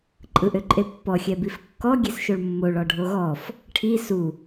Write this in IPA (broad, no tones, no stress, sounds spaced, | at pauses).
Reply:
ǃʼ ɯ ʔ ø ǃʼ e pː ɔ xʲ ɛ b i f kː ɔ ɡʲ e s ʃ o ɭ mː o ɭ ɔ ɖʱ o ɣ ɔ f | ʈʰ i s u